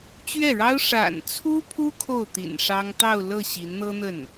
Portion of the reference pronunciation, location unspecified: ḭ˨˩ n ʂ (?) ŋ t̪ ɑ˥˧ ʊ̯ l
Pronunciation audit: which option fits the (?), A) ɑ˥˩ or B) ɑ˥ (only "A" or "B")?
B